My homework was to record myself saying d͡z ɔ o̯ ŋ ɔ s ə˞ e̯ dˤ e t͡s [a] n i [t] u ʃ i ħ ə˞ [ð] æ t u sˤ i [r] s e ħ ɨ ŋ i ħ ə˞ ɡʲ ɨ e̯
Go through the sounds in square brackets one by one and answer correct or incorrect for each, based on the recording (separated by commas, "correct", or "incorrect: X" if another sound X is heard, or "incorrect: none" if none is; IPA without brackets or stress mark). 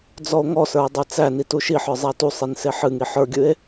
incorrect: æ, correct, incorrect: zˤ, incorrect: n